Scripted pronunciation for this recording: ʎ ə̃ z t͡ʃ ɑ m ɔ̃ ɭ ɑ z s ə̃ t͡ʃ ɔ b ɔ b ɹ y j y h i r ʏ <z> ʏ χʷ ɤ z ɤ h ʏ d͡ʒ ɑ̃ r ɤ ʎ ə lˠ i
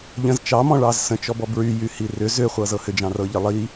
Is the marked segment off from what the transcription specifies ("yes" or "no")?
no